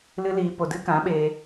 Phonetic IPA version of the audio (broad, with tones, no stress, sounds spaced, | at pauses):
l ɨ˦ l iː˧ p o˧ d ɨ˦ k ã˨˦ ɓ eː˧